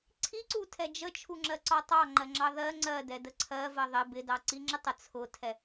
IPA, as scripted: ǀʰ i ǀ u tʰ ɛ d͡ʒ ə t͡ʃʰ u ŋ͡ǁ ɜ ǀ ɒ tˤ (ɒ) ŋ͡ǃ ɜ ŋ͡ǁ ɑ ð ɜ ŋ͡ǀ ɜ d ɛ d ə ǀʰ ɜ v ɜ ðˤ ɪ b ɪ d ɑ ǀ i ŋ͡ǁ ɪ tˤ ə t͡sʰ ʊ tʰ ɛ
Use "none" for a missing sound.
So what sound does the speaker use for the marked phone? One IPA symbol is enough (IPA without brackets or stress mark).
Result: ɑ